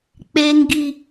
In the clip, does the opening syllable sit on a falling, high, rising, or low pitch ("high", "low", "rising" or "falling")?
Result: high